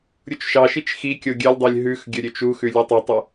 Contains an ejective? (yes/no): no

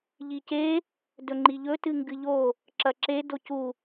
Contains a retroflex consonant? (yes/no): no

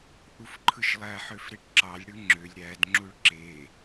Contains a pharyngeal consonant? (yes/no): yes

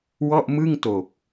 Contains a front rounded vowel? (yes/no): no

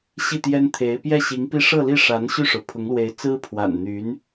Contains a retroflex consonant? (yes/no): yes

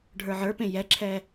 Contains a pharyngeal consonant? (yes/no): yes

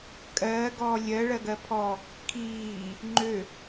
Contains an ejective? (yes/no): yes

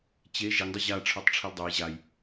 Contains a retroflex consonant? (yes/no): yes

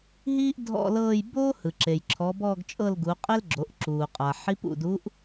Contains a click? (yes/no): yes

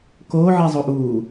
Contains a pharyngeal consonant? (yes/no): yes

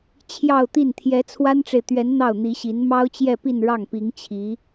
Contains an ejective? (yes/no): no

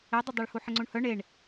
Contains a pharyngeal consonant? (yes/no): yes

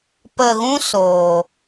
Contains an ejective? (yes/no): no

